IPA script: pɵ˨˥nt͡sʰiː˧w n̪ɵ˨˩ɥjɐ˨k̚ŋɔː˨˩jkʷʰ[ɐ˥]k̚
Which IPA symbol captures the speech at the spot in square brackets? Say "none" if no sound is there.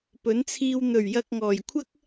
ɐ˥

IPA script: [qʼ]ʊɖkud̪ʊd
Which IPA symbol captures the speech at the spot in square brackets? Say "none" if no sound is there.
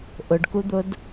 ʔ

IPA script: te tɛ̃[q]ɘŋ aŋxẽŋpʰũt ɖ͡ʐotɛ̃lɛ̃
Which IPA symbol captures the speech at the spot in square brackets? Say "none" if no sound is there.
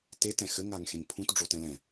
x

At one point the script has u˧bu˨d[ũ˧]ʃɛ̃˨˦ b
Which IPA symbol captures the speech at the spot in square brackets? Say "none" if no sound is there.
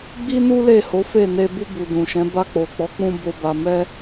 ũ˨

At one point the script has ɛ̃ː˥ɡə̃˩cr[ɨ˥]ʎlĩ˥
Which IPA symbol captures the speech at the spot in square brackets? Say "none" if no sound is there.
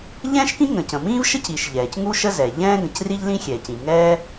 i˥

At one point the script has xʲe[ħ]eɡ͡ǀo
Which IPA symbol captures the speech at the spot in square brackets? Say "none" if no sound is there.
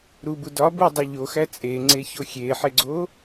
ħ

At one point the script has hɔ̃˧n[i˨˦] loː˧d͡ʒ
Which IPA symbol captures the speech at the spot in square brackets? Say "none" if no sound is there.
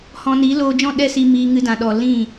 i˨˦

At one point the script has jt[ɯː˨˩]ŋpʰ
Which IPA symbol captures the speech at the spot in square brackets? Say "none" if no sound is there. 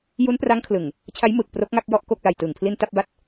ɯː˨˩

